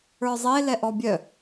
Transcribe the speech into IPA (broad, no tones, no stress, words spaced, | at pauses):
ə˞zˤe lɛʔɔbʲœ